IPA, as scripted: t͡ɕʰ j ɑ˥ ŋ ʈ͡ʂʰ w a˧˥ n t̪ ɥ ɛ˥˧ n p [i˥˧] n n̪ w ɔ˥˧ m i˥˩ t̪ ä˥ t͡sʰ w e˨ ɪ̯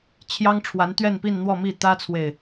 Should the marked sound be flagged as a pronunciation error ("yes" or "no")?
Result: no